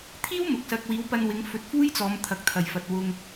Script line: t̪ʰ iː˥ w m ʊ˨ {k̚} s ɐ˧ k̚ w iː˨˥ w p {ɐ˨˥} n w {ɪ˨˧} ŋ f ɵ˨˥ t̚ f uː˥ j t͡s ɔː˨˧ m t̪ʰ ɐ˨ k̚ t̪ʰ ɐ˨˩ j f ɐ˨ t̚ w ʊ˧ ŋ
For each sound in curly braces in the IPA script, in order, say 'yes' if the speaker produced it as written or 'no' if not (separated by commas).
yes, no, yes